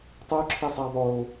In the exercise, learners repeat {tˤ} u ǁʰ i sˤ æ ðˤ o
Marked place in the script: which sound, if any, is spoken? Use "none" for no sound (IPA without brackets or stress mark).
tˤ